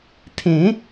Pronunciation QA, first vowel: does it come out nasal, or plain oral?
nasal